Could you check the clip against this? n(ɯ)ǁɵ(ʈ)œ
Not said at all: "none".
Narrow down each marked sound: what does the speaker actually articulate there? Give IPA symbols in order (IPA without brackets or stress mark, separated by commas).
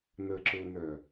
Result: ə, n